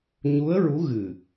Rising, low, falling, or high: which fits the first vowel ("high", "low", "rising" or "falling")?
rising